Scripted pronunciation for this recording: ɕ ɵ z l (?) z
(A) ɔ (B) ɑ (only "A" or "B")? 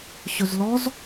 A